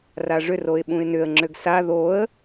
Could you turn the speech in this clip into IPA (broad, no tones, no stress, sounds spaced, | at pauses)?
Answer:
r a ʐ ʏ r o ɪ̯ ɓ ũ ɪ̯ n ʏ ə̯ ŋ͡ǁ ø ɡ s a ð o ə̯